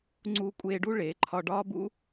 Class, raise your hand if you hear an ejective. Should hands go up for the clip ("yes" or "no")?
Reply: yes